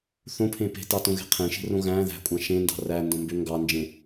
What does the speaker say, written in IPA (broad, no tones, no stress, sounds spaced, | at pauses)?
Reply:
θ õ pʰ ẽ p e̤ t ɑ t õ ɣ e̤ qʰ ẽ ʃ e̤ r õ ɣ æ̃ ð æ̤ kʷʼ ɑ̃ ʃ ẽ n d ɑ̤ r æ n d õ m b ø ŋ ɡ ɑ n d͡ʒ ẽ